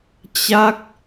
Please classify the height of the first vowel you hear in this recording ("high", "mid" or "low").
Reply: low